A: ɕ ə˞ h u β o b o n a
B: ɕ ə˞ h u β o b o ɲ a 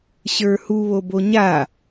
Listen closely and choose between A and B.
B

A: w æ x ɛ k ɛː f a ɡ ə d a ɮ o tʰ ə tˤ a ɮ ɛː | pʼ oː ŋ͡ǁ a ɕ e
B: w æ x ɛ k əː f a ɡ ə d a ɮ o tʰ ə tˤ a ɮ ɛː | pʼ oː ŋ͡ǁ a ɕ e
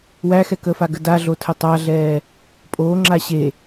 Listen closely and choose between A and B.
B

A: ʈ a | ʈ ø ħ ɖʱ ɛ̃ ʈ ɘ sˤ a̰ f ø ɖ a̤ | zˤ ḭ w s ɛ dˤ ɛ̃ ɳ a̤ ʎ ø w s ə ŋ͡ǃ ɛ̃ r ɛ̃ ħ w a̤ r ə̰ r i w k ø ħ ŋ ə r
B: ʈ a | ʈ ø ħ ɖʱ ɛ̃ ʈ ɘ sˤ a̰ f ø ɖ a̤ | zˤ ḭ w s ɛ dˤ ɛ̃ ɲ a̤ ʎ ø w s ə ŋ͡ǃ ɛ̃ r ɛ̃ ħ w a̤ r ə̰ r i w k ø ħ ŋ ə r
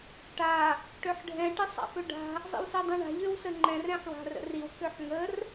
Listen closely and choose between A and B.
A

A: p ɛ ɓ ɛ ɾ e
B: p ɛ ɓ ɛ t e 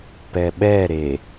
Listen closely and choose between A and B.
A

